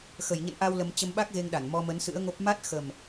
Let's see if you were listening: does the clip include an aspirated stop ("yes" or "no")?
no